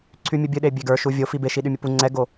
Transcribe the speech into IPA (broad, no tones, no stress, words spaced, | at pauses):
ǀʰymʲɨbʲɨɗe bʲeɡə˞ʃu vʲofi beʃiɗymʲɨ pu ŋ͡ǀɛɡo